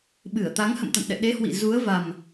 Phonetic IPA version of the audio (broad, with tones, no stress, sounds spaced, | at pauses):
ɓ ɨ˧˩ ə̯ t̪ a˨˦ ŋ h ə̰˧˨ m t̪ a̰˧˨ n ɗ ɛ̰˧˨ ɗ e˨˦ h w ḭ˧˨ z u˨˦ ə̯ v a˨˩ m